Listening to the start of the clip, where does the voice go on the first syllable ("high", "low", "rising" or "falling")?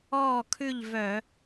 falling